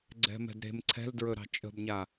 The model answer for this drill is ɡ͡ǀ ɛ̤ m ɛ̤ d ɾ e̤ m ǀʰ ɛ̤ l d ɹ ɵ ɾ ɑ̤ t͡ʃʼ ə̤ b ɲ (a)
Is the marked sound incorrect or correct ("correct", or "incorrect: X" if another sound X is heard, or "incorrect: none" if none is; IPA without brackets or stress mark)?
correct